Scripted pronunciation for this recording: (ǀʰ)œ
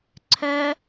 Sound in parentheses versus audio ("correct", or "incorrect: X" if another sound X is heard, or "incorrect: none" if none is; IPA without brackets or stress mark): correct